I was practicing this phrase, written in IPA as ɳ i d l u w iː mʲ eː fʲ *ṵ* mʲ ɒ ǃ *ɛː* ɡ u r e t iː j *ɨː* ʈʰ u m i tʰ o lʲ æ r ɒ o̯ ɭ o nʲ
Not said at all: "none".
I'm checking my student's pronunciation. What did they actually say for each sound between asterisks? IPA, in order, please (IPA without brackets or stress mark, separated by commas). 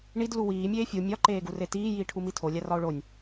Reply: u, eː, iː